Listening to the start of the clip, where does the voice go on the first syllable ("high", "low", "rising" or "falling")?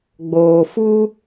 low